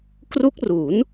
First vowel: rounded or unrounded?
rounded